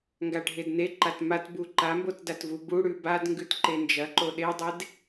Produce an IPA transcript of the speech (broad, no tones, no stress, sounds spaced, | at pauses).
ŋ ɡ a ɖʱ e d n e ǃ a t m a t b u ǃ a m b o t d a t v u b u ɽ ʉ b a d ŋ ɡ ʉ t ǃ e n d͡ʒ ɐ ǃ o ɗ e dˤ e d